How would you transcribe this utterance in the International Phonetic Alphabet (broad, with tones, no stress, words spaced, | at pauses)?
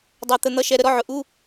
dˤæ˧ t̪ə˧ n̪ʌ˧˥˧ʃɛ˧ ɾə˥˧ɾɔ˧˥˧ʕʊ˧˩ ʔu˧˥˧